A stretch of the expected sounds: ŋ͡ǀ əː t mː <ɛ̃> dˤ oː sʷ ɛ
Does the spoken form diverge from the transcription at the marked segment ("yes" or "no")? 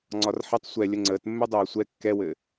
yes